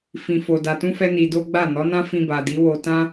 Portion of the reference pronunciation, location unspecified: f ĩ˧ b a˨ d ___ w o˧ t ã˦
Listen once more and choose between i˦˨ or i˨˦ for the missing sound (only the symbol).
i˨˦